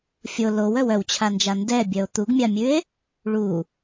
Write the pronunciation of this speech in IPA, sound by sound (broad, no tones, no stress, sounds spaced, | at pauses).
fʲ o l o w œ w œ w t͡ɕʰ a n d͡ʒ a n d ɛ bʲ œ o̯ t̪ u ɡ mʲ a mʲ ʉ e̯ | ɭ u